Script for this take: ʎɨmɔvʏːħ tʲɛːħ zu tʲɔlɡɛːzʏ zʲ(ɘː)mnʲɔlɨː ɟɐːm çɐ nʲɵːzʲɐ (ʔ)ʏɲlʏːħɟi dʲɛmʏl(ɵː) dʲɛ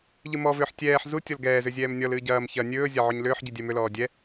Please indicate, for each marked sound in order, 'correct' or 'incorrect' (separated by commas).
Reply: incorrect, incorrect, incorrect